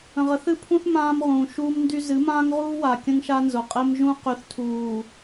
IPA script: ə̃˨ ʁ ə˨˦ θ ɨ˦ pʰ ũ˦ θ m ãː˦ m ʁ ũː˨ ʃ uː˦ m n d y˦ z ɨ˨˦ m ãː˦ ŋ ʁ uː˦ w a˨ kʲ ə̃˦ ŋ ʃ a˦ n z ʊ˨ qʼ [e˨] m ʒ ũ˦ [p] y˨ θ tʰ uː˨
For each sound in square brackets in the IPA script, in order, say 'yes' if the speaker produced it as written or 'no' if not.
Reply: no, no

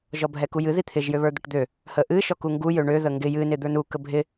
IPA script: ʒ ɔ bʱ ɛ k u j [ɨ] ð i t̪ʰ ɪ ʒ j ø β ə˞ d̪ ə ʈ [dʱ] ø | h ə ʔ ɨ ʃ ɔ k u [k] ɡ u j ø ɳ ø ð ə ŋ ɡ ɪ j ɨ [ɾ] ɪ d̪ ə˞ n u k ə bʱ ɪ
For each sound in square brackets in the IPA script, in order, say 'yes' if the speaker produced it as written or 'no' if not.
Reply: yes, no, no, no

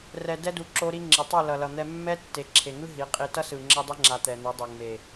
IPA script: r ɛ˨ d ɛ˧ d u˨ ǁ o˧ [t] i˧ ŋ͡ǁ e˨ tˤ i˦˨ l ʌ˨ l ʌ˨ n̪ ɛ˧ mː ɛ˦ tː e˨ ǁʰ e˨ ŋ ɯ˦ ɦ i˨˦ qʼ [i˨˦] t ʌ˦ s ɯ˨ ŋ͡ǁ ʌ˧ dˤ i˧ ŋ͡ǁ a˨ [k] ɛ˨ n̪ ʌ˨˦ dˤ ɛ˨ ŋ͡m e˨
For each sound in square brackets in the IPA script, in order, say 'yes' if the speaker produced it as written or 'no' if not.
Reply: no, no, no

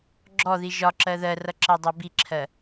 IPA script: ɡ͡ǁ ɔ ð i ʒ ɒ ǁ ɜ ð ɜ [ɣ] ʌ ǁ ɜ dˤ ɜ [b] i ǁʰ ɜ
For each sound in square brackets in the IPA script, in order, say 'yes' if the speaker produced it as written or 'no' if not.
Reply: no, yes

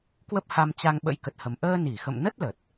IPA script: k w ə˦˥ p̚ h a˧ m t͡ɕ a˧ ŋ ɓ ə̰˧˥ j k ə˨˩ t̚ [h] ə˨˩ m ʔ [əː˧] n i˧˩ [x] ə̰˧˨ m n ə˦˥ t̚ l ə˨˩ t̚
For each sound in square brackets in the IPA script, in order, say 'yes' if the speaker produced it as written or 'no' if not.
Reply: yes, yes, yes

